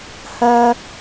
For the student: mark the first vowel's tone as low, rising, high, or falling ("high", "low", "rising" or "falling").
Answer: high